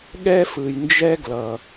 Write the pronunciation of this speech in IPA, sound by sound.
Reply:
ɠ ɛ˦ f ɯ˨ j n d͡ʒ ɛ˦ ɡ l ʌ˨

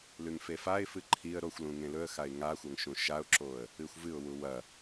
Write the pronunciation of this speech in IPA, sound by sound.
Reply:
l ʉ ŋ f e f a ɪ̯ f ɨ ǃʰ i ə̯ ɾ o xʷ l ũ ŋ ẽ l ɵ ə̯ x a ɪ̯ ŋ a xʷ ɐ ŋ ʃ ũ ʃ a ʊ̯ ǁ o ə̯ | ɨ xʷ v ɨ ʊ̯ w u w ɐ

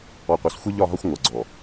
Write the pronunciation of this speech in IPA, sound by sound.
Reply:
ɔ˨ qʷ ɛ˨ s xʷ e˦ ʎ ɒ˦˨ ɦ ɒ˦ xʷ ŋʷ ʌ˨ ɡ͡ǀ ɔ˨

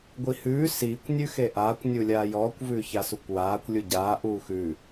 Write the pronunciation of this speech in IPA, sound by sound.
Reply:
ɡʷ i h ʉː s iː kʷ nʲ ʉ x e ʔ aː kʷ nʲ u lʲ aː j ɔː kʷ v ʉː ç a s u kʷ w aː kʷ lʲ u ɟ aː ʔ uː x ʉ

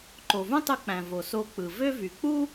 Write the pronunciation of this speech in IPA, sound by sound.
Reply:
ǃ o˩ v ũ˥ tˤ ɯ˧ k͡p æ̃˩ v o˩ s o˧ k͡p ɯ˩ v ø˥ v y˩ k͡p u˥

